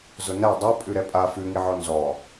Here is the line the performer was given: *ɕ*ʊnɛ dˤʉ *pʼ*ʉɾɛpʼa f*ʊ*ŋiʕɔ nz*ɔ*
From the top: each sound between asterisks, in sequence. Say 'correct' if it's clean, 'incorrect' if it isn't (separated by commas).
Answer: incorrect, correct, incorrect, correct